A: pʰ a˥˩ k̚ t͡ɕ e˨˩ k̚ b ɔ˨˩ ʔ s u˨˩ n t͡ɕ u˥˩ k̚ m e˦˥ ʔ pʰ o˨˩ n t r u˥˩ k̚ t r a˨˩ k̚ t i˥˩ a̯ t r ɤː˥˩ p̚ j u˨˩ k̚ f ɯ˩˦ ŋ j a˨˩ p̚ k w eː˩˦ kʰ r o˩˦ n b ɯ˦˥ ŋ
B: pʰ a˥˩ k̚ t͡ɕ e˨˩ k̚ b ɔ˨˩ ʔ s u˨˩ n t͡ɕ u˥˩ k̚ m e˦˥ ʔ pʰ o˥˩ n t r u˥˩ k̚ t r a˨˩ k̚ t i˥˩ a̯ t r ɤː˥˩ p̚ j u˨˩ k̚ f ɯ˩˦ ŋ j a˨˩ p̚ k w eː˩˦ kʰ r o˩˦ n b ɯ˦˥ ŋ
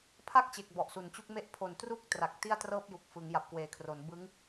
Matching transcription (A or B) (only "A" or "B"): A